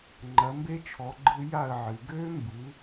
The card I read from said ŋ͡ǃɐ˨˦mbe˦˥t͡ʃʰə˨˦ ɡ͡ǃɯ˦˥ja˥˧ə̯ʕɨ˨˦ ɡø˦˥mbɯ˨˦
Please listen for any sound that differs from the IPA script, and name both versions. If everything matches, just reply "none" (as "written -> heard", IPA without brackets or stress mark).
ə˨˦ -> ɔ˨˦